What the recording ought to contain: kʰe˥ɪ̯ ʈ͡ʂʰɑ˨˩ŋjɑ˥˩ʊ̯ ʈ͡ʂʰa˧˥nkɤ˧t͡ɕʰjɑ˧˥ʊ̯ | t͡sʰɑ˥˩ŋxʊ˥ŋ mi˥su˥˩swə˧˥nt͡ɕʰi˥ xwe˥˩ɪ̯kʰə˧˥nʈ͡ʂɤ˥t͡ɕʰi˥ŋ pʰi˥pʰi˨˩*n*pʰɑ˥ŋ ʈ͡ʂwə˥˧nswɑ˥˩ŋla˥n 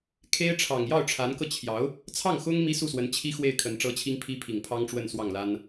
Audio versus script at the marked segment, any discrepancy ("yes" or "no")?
yes